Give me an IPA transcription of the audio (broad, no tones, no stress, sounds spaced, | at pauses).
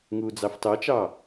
ŋ uː d͡z ɑ f t ɑ t͡ʃ ɑ